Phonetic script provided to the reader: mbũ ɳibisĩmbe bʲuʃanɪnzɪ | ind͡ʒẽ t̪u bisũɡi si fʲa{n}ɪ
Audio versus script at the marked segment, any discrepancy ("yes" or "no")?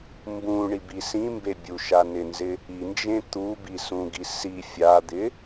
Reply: yes